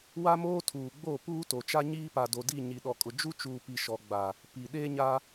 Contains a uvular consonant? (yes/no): no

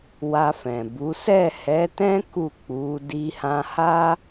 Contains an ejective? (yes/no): no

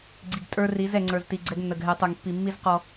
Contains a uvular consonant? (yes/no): yes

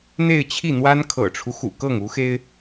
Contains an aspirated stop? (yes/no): yes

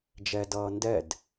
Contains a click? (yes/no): no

